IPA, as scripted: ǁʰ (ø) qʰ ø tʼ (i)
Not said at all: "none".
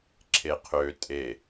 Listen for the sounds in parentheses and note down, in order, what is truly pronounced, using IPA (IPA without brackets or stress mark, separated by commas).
e, e